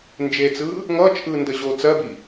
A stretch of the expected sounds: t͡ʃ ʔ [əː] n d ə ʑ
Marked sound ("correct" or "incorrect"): incorrect